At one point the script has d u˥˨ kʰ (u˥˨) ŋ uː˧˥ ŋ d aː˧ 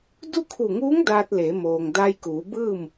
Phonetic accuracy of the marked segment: incorrect: u˧˩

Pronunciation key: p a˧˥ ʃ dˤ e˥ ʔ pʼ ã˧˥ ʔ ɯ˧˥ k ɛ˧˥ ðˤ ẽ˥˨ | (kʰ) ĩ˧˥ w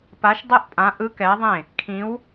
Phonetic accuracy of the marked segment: correct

